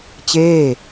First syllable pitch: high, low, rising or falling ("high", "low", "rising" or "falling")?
falling